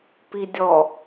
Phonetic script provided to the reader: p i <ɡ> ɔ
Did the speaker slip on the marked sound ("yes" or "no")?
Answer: yes